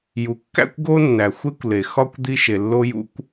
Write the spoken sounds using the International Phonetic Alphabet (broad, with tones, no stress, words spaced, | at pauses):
ju˩kːæ̰˥kʷ ɡo˥nːæ˩xʷe˥kʷle˩ xɒ˥kʷ d̪i˥ʃe˩ lːo˥jṵ˥kʷ